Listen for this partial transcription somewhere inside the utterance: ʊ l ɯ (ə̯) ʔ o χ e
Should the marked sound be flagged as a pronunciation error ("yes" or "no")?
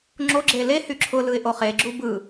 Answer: yes